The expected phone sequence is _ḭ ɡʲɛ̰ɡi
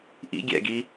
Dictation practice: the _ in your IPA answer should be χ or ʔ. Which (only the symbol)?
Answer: ʔ